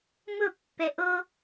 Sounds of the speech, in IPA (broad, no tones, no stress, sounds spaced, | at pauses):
m ʊ pː ɛ ʔ o